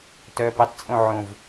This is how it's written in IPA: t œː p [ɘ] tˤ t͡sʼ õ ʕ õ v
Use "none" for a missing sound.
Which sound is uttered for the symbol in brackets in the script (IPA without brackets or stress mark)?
ɘ